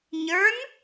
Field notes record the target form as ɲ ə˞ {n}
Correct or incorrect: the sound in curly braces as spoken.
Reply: correct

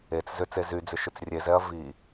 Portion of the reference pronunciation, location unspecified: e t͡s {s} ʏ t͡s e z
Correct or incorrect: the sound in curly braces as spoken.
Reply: incorrect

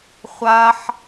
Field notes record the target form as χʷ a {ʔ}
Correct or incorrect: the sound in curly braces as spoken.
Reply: incorrect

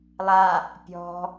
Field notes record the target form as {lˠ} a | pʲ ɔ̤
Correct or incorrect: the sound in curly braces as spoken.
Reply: correct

